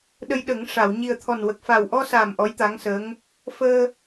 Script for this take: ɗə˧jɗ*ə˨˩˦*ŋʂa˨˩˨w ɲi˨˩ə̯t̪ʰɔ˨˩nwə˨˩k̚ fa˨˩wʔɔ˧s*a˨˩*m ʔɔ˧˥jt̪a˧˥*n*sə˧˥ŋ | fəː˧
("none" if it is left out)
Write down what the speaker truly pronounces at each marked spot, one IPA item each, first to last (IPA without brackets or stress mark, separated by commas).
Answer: ə˨˩˦, a˨˩, ŋ